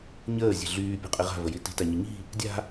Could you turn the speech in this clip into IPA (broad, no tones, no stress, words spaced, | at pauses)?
ɲəːzʲe̤ ɮyːpʲo̤qʼi ʁa̤vəji ti̤taɲɘ ɲi̤ | dʲa̤